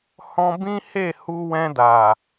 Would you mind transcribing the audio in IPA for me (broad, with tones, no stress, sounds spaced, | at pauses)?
h ɔ̃˧ b ĩ˦ h e˦˨ h u˧ w ɛ̃˧ d a˨